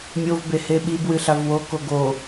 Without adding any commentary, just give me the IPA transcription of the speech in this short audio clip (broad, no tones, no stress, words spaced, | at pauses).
mʲovbe heɓibwɨ ɬavwoko ɡo